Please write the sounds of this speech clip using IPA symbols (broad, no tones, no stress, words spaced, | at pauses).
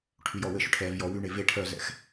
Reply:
ʈʰyjɔwɘʃʏ ʈʰɛvjɔ wyɳe ve ʈʰœzɛ̰x